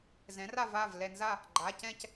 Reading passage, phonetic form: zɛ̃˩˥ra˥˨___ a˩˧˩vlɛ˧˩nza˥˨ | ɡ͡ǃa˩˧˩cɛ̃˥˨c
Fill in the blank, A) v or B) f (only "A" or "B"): A